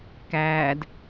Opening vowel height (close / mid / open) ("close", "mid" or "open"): open